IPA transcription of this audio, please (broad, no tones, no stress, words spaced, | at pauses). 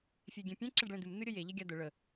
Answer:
fʲeɡʲẽpʲɛ̃ ǁɛɖɭẽd̪ɨm n̪ɨɾʲəje ʎeɡʲad̪ə ɭə